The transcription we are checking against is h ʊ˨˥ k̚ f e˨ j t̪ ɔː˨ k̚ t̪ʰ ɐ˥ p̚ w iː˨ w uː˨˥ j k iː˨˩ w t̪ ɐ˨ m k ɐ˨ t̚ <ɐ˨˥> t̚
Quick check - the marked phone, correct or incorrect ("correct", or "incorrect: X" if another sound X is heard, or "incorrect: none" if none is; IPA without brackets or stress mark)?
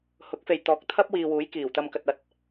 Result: correct